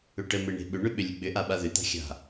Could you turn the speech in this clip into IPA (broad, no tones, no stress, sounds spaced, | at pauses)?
ʏ ʈ ə m e ɳ e̤ ɓ ʏ ɳ ʏ ɓ ʏ lʲ ə ɡ͡b ʏ ʔ a ɓ a ð ʏ t̪ a̤ xʲ a̤